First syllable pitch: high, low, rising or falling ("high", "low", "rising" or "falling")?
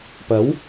rising